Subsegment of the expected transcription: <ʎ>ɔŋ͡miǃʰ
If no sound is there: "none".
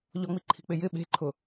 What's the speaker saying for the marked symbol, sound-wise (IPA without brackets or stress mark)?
ʎ